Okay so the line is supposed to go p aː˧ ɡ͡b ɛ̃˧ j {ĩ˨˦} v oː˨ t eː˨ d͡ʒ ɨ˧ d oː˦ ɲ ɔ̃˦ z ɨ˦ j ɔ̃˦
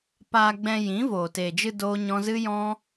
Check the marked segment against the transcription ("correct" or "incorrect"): correct